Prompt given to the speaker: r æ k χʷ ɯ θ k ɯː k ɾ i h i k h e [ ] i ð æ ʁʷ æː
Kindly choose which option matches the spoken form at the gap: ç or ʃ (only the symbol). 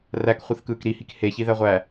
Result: ç